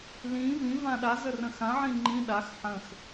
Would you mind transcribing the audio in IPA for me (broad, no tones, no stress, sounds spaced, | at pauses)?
l ĩ v ĩ v ã ɗ a z ə r ə̃ x ã ʕ ĩ ŋ͡ǃ ĩ ɗ a x ħ ə̃ x